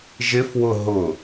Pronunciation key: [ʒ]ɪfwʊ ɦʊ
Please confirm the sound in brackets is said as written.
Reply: yes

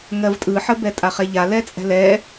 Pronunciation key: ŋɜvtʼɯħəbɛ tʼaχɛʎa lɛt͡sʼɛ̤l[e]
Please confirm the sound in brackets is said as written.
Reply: no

